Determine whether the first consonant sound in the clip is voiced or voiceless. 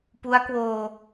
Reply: voiceless